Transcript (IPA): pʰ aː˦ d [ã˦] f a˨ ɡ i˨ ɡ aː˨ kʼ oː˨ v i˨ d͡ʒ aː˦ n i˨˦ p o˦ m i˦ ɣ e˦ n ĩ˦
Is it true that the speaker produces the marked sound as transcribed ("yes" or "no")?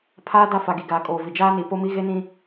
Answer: no